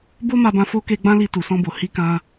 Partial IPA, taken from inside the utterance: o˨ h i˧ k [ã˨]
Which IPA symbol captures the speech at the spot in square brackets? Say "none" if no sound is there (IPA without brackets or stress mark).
ã˧